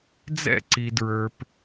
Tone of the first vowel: falling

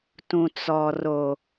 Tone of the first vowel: low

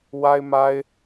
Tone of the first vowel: high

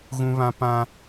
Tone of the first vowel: high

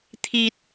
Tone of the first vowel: high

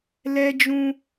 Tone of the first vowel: high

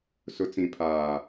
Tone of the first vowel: low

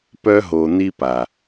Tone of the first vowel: high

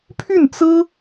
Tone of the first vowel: falling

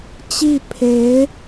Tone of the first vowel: falling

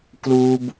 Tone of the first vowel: high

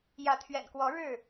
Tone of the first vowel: rising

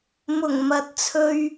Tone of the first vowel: low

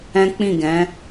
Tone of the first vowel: high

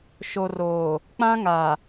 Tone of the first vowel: low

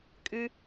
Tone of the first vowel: high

